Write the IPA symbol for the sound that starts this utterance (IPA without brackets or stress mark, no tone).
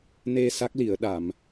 n